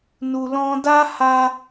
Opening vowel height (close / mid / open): close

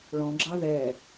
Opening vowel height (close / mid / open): mid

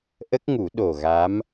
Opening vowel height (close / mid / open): mid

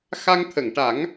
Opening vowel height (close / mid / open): open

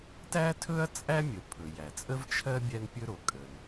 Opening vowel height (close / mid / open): open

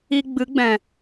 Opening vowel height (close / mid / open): close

